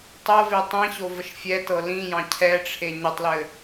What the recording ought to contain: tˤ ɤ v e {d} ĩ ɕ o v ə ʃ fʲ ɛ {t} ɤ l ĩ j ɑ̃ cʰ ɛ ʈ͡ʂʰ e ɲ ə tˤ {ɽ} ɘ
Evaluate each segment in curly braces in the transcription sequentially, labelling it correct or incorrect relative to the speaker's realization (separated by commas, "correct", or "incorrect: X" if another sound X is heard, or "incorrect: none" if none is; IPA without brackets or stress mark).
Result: incorrect: tˤ, correct, incorrect: l